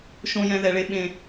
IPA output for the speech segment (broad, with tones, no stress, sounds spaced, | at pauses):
ʃ õ˧ j ɛ̃˧ ð ɛ˨ ɭ e˧ ɓ ẽ˨